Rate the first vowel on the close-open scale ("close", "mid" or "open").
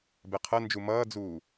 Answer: mid